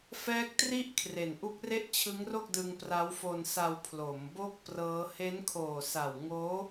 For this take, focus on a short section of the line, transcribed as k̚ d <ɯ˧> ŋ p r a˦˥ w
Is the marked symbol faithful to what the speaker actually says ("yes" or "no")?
yes